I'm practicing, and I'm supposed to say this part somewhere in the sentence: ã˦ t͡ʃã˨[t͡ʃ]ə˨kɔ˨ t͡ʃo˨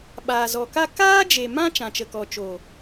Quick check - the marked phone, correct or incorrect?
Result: correct